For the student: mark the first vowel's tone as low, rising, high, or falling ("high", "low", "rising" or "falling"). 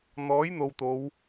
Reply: rising